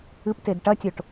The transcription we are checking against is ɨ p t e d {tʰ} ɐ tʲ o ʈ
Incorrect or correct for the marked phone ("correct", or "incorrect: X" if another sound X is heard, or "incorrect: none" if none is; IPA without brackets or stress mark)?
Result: incorrect: ʈ